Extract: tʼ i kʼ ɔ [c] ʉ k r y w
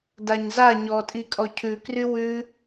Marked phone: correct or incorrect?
incorrect